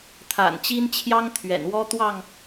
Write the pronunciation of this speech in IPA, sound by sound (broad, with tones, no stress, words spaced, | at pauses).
t̪ʰa̰˨˩nt͡ɕi˦nt͡ɕʰjɑ˦ŋ t̪ʰɥɛ̰˨˩nwɔ˦ t̪wɑ˥˨ŋ